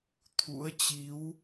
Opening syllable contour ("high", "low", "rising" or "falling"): rising